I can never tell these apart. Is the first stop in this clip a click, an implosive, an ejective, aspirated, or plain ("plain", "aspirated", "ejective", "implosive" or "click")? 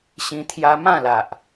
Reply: aspirated